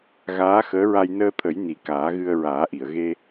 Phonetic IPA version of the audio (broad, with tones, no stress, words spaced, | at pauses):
ɣaː˧˥xəː˧˥ɹa˧j nəː˧t̪ʰə˨˩˦j ni˨˩ kaː˨˩˦ɣɨ˧ə̯ɹaː˨˩˦ʔi˨˩˨ə̯ ɣe˧